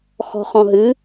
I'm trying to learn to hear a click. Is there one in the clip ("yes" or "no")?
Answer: no